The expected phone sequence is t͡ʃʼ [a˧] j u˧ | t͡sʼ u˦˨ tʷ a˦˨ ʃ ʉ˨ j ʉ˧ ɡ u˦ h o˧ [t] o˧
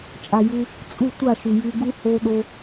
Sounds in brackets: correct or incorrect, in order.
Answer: incorrect: a˨, incorrect: ɗ

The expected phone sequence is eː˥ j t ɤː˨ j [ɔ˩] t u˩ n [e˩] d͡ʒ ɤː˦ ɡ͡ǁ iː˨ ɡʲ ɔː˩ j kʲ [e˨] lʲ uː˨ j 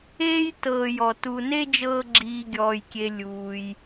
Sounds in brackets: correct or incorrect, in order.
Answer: correct, incorrect: e˦, correct

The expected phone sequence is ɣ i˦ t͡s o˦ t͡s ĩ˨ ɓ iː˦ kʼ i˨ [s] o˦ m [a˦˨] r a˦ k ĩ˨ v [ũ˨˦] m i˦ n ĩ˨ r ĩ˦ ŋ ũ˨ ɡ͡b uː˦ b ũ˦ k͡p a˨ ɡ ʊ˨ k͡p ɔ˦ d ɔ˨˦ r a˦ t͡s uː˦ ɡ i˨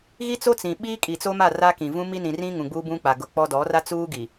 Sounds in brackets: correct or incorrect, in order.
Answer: incorrect: t͡s, correct, incorrect: ũ˦

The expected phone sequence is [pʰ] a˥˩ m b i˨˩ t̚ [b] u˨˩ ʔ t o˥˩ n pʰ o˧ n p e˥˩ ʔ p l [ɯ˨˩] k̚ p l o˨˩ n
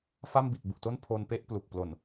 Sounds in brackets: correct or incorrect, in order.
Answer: incorrect: f, correct, incorrect: u˨˩

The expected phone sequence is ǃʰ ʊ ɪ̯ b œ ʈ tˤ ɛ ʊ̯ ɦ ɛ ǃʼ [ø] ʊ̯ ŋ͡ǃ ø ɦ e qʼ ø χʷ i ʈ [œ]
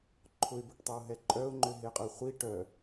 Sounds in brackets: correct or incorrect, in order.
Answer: incorrect: œ, correct

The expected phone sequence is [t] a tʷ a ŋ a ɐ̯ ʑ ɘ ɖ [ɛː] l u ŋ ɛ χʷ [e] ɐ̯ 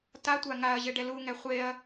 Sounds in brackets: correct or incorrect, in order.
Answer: correct, incorrect: ɛ, correct

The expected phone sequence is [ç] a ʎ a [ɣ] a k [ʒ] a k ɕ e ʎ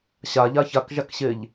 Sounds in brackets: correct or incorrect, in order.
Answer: incorrect: ɕ, incorrect: ç, correct

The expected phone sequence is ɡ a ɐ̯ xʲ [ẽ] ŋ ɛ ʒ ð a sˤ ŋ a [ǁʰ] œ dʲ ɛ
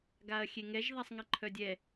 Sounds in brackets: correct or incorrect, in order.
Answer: incorrect: e, incorrect: ǃʰ

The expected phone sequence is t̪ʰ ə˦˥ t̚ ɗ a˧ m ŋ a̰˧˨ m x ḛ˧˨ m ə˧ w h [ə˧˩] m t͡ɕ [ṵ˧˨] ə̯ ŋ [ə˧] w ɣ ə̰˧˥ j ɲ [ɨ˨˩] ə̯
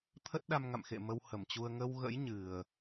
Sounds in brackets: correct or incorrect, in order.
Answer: correct, incorrect: u˧, correct, correct

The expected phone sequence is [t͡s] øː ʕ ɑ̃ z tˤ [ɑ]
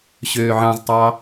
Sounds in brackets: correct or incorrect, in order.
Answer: incorrect: ɕ, correct

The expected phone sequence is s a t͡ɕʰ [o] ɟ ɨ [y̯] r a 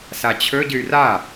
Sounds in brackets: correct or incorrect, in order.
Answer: incorrect: ɵ, correct

